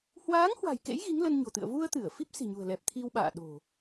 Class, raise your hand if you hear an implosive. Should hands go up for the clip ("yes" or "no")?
yes